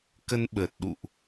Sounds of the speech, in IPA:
kə˧nɓə˨˩t̚ɗṵ˧˨ʔ

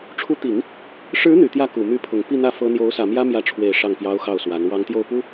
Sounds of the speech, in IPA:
ʈ͡ʂʰu˧˥t̪i˨˩˦ŋ | ʂɻ̩˧˥ n̪y˨˩t̪jä˥˩ ku˨˩ my˧˥pʰʊ˨˩ŋ pi˥˧n̪ä˥˩ fɤ˥ n̪jo˧˥ʊ̯sä˨˩ mjä˥mjä˧˥ʈ͡ʂʰwe˨˩ɪ̯ ʂɑ˥˩ŋpjɑ˥ʊ̯xɑ˥˩ʊ̯swa˧˥n wɑ˧˥ŋt̪jo˥˩ʊ̯pu˥

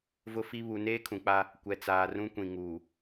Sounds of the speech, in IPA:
vʊ˦fi˦ βu˨neː˦kʰũ˨k͡pa˦ | kʷɛ˨t͡saː˨rũ˦ kʷĩ˨ŋuː˨

